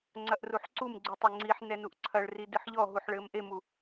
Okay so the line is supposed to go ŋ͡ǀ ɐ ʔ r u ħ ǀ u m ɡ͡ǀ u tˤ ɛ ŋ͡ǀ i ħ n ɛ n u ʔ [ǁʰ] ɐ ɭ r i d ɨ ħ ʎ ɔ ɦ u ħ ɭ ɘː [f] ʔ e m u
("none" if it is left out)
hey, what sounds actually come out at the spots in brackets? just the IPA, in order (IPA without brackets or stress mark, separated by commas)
ǀʰ, m